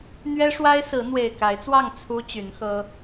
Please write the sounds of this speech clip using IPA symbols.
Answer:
n̪ ɥ ɛ˦ ʂ w a˦ ɪ̯ s ɹ̩˨˦ n̪ w e˨˩ ɪ̯ k a˨˦ ɪ̯ t͡s w ɑ˥˨ ŋ t͡sʰ u˦ t͡ɕ y˨˦ n x ɤ˦

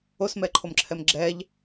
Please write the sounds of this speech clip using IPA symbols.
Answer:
o s m ɛ ǃʰ o m ǁʰ ɛ m ɡ͡ǁ ɛ ʎ

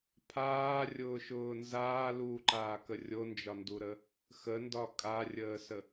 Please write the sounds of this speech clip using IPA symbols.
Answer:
pʰ aː rʲ ʊː ʃ ʊː n z aː l uː ǃ aː k ə rʲ o n d͡ʒ ɒ n d u ɾ ə | x ə n d ɒ kʼ a rʲ əː s ə

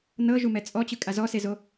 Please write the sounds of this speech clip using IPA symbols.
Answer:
n ɤ ʒ u m ɛ t͡sʼ ɔ t͡ɕ ɯ kʼ a z ɔ s e z o

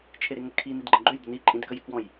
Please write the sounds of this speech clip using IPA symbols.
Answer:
t͡ʃʰ e ɾ e ŋ ə kʰ i n i d ɡ͡ǃ ə̃ ɡ͡ǃ ø j d ə n i ǃʼ ĩ d k ə j ɪ k w ɔ̃ j

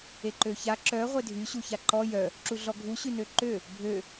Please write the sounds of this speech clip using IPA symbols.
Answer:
e ǃ ø ç a ǁ œ ʁʷ e dʱ y ɕ u ç a ǃ ɔ j œ | ǁ u ɮ ɔ ɡʱ u ɕ y n ø ǃ ø | bʱ ø

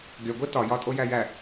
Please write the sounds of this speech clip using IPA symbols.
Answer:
ɡʲ ɒ ɡʷ e t ɒ j ɒ tʼ o j æ j æ

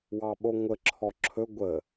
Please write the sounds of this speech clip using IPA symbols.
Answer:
w ɑ ɓ o ŋʷ ə ǁʰ ɔ ǁʰ ɵ ɡʷ ə

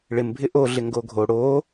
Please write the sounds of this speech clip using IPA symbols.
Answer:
ɭ ɪ m bʱ ɪ ʔ o ɮ ɪ ŋ ɡ o ɡʱ o ɽ o

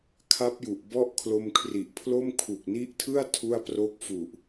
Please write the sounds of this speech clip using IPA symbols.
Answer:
kʰ a˦˥ p̚ j u˨˩ ʔ b ɔ˥˩ ʔ kʰ l o˧ m kʰ r i˨˩ ʔ pʰ l o˥˩ m kʰ u˨˩ k̚ n i˦˥ ʔ tʰ ɯ˥˩ a̯ tʰ u˥˩ a̯ p r o˥˩ k̚ f u˨˩ ʔ

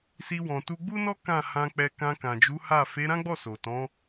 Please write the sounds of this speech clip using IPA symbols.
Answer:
s i˧ w ɔ̃˨ t u˧ ɡ͡b u˦ n ɔ˦ k ã˦˨ h ã˧ k͡p ɛ˧ k ã˧ k ã˨ d͡ʒ u˨˦ h a˦˨ f e˨˦ ɾ ã˦ ɡ͡b ɔ˦˨ s o˨ t ɔ̃˨˦

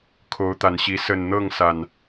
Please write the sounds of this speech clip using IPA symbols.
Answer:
kʰ o˨˦ ʊ̯ t̪ a˨˩ n ɕ i˨˦ s ə˨˩ n n̪ ɤ˥˨ ŋ s a˩ n

